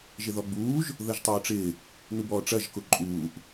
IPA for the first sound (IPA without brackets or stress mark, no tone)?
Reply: ʒ